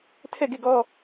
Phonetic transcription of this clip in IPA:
tʰ ɛ˦˨ ɡ e˦˨ ɡ ɔ˦

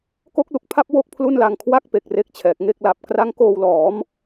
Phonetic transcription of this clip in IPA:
k o˦˥ k̚ l u˨˩ k̚ pʰ a˥˩ p̚ w o˥˩ k̚ pʰ l u˥˩ n l a˧ ŋ kʰ w a˦˥ k̚ p e˨˩ k̚ r e˥˩ k̚ t͡ɕʰ ɛː˨˩ k̚ ŋ e˥˩ k̚ l a˨˩ p̚ k r a˦˥ ŋ k oː˧ w l ɔː˩˦ m

